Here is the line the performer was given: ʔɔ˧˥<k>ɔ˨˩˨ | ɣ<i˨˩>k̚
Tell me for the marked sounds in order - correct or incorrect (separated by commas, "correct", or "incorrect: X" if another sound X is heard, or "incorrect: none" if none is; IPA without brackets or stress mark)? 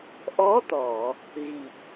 incorrect: t̪, correct